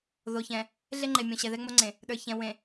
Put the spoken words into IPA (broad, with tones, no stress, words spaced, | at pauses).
ðo˨çɛ̃˨ | ɮe˦ŋ͡ǃe˨mʲõ˨ ɕɛ˨ðɛ˦ŋ͡mo˦ŋ͡ǀẽ˨ | ɗə˞˨çɛ̃˨ wẽ˨